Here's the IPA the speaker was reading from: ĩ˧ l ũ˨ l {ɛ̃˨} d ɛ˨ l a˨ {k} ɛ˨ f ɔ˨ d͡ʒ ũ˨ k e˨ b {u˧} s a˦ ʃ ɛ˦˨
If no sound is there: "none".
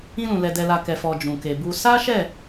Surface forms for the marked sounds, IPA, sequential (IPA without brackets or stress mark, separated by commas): ɛ˨, k, u˧